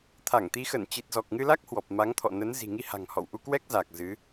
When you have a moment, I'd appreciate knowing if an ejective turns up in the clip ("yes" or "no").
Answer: no